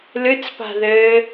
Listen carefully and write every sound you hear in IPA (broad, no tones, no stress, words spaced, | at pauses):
lɨt͡spa̤ðɘː